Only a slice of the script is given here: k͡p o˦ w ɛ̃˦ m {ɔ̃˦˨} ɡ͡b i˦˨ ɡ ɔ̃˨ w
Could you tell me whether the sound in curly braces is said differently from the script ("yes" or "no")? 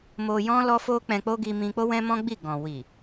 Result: yes